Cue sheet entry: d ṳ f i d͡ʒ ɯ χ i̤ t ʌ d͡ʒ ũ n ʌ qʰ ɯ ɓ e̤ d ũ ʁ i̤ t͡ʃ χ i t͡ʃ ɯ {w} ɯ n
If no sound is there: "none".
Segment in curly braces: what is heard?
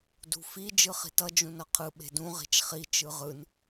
ʁ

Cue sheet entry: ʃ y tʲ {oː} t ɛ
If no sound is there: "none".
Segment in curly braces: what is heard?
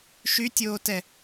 oː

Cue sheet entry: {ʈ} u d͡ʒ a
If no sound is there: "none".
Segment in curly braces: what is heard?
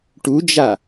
ʈ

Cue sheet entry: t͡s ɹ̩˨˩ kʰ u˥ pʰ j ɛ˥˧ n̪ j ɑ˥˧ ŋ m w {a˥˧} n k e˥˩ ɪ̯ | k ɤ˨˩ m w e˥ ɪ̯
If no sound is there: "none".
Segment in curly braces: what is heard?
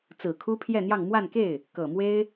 a˥˧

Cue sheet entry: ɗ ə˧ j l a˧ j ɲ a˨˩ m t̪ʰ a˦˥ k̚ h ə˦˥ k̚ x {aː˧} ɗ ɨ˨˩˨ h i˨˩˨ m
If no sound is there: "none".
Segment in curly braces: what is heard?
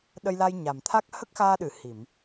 aː˧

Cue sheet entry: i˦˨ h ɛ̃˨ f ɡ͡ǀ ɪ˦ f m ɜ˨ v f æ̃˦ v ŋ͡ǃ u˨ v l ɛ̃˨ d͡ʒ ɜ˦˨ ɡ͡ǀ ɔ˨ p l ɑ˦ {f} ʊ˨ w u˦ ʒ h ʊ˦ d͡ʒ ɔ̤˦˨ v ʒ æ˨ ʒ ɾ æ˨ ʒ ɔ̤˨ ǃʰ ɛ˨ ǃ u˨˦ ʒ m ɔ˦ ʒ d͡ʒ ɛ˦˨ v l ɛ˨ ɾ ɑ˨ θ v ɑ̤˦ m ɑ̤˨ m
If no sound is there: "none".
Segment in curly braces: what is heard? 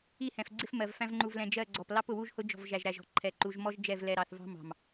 p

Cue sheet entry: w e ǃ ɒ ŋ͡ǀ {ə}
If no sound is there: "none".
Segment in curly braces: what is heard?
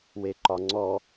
ɔ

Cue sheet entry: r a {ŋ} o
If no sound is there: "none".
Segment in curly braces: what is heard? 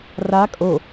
kʼ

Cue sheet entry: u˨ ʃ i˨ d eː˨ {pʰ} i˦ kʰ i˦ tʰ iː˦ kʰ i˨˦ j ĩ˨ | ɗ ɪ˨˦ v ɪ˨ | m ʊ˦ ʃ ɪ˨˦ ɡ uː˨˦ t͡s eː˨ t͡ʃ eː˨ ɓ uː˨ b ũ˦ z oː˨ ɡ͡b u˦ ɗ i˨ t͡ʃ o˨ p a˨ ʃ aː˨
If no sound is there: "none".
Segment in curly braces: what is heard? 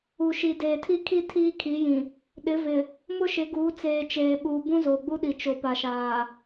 tʰ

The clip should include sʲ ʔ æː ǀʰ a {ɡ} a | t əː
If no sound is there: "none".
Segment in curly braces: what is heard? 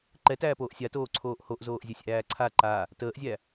ǃ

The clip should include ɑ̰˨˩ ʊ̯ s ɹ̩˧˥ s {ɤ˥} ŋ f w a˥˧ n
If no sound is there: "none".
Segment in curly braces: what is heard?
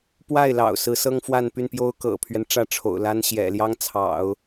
ɤ˥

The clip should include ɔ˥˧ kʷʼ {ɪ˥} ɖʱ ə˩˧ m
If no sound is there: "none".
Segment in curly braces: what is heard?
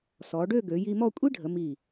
i˥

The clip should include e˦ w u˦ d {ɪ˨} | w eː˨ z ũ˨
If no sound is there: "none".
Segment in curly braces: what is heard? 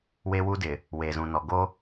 ɪ˨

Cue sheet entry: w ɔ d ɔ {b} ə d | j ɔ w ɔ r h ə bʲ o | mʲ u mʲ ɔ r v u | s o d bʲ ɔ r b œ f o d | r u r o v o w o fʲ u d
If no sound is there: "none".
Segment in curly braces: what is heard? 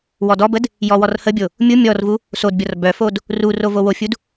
b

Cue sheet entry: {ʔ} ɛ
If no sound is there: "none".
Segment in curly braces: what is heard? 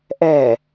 ʔ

